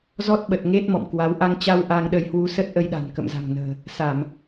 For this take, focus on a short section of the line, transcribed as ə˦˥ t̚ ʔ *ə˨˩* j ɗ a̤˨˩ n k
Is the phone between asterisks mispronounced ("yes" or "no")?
yes